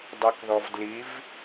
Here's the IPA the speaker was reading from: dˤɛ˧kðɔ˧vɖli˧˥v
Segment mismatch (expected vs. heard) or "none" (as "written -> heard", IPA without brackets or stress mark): ɖ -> d